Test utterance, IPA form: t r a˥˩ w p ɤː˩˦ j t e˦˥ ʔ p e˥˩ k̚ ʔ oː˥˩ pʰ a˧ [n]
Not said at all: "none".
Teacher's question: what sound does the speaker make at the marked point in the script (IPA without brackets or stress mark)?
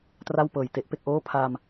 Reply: m